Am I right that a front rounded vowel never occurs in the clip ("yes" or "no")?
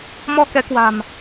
yes